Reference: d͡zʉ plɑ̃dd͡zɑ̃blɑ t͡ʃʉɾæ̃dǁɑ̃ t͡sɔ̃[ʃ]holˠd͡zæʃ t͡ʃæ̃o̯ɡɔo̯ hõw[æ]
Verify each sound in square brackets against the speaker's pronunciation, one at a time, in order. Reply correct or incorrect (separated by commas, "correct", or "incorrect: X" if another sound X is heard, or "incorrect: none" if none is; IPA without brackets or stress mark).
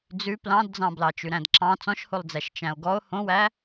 correct, correct